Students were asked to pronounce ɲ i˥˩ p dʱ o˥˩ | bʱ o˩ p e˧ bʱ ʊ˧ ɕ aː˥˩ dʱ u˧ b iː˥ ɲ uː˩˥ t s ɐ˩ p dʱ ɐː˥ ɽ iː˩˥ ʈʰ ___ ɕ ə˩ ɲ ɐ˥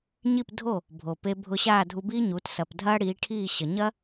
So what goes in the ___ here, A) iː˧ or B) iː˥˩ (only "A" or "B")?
B